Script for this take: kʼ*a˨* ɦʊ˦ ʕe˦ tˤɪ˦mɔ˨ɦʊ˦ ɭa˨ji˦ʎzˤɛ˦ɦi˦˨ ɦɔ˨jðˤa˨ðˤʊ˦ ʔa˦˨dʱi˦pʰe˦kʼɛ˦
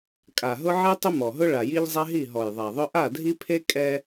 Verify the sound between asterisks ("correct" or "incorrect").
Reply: correct